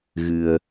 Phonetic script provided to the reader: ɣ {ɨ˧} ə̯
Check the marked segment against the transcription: correct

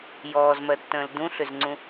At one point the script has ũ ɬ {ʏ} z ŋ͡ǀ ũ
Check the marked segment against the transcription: correct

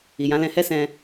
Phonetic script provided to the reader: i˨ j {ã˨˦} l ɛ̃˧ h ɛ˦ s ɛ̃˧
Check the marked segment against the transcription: correct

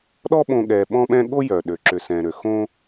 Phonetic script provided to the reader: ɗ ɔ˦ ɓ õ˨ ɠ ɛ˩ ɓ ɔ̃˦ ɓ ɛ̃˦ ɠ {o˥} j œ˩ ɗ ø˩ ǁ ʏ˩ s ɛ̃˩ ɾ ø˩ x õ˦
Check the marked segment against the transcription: correct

